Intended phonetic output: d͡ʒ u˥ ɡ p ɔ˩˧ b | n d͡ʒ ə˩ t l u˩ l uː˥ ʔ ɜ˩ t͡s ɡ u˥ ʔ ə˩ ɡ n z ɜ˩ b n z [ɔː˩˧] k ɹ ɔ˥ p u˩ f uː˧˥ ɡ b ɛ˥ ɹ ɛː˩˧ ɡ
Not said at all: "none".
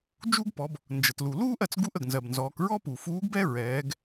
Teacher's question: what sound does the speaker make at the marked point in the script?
ɔː˩˧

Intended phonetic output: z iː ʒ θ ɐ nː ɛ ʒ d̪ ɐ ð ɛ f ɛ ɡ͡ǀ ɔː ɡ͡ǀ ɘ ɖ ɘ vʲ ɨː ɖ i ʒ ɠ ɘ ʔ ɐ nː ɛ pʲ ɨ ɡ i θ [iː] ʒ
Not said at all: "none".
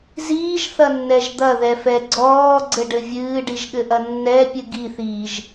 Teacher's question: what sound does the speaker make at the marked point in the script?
iː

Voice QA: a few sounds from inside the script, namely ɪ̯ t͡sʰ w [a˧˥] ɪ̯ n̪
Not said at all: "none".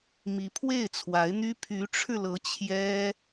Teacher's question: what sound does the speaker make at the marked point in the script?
a˧˥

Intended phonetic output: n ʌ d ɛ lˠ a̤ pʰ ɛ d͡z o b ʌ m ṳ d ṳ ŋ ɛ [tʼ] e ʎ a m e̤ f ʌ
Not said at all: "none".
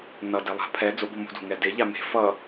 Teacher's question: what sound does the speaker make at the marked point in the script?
d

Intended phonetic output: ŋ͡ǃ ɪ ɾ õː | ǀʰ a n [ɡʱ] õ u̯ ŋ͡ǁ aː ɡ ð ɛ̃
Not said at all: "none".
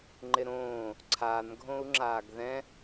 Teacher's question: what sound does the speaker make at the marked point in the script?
ɡʱ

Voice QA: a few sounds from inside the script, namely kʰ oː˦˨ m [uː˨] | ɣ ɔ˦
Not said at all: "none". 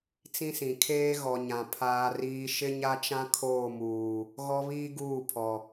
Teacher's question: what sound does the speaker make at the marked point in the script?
uː˨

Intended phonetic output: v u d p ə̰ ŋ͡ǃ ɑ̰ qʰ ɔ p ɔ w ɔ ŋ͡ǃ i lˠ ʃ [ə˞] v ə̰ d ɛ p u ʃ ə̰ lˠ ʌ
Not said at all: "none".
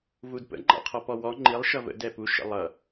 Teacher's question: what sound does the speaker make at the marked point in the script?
ʌ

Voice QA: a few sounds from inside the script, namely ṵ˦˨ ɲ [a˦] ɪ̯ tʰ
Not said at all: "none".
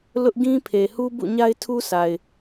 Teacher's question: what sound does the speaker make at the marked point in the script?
a˦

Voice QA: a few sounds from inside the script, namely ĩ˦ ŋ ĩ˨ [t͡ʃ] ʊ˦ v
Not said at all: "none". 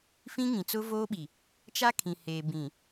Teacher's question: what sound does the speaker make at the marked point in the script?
t͡s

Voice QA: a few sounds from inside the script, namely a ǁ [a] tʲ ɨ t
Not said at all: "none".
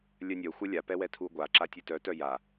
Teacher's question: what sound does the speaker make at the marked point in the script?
a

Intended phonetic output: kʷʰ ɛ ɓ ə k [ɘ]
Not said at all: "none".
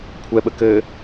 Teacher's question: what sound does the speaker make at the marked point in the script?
ɘ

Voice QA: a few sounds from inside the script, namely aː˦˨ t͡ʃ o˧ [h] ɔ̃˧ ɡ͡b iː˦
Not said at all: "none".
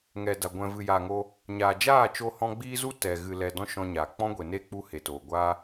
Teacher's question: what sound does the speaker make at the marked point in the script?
h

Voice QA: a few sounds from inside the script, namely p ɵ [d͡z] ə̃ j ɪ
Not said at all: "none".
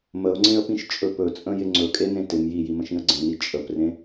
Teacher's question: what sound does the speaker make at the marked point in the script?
t͡sʼ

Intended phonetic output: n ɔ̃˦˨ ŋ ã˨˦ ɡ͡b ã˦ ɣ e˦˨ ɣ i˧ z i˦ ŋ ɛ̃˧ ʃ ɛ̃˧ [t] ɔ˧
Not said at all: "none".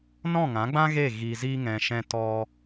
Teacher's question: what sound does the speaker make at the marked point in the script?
t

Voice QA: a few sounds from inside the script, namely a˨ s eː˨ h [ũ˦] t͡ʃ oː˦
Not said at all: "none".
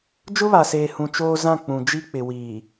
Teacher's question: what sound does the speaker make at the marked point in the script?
ũ˨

